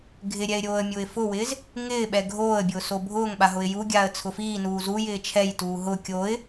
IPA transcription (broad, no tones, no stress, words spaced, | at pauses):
ɡʱɪɾʲɛɪ̯ ɾʲoːə̯mʲʊːɪ̯fʊwɪːz | ŋɪː ɓɛɡʱoːə̯bʲʊː sobʱʊːŋɓa ɦʊɪ̯juɡʲaːə̯ t͡sʰʊfiːnuː zujɪː t͡ʃʰɛjtuː ɦʊ kʲoːɪ̯